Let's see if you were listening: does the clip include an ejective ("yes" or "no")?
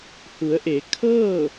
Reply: no